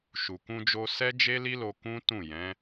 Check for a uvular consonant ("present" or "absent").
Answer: absent